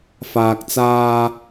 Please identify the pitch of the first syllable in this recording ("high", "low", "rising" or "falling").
low